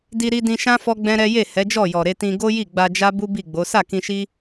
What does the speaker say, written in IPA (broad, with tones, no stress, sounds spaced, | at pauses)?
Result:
d i˧ ɾ i˧ d ĩ˧ ʃ ã˦ f ɔ˦ ɡ͡b ɛ̃˦ ɾ ɛ˦ j e˦˨ h ɛ˨˦ d͡ʒ ɔ˦˨ j ɔ˨ ɾ e˧ t ĩ˧ ɡ o˦ j i˦˨ ɡ͡b a˧ d͡ʒ a˦ b u˦ b i˦˨ ɡ͡b o˨˦ s a˦˨ k ĩ˧ ʃ i˦